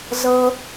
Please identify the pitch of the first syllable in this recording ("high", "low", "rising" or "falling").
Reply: high